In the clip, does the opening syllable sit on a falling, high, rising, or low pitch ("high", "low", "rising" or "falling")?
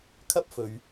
high